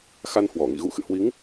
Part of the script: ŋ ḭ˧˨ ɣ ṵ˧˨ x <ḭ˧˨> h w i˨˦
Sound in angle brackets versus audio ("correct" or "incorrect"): incorrect